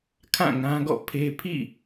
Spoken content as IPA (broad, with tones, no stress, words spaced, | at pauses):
kʰã˦˨ŋã˦ɡɔ̰˦˨pʰe˦ pʰḭ˦˨